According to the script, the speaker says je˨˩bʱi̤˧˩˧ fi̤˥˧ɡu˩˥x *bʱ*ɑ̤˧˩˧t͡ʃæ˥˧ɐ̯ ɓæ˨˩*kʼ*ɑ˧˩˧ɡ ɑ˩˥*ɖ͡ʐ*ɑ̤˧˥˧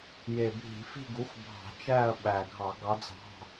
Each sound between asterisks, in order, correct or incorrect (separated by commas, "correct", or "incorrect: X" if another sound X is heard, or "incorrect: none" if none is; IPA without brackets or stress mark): correct, incorrect: ɡʱ, incorrect: d͡z